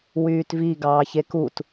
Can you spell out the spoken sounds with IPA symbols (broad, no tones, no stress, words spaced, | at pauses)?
wyːtvi ɡɑːçekut